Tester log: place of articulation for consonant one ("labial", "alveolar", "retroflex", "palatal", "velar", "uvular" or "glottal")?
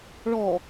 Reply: retroflex